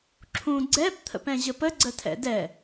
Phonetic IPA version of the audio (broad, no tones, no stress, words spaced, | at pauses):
ǁʰũ ɡ͡ǀɛp t̪ʰə̰pɛ̃ʑəpə ɡ͡ǀətʰɛ̰dɛ